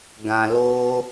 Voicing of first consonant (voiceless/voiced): voiced